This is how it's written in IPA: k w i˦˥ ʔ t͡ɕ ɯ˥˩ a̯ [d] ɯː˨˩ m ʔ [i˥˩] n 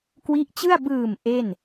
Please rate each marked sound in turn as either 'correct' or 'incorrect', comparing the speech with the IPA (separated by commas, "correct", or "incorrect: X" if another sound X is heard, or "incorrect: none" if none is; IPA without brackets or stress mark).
incorrect: b, incorrect: e˥˩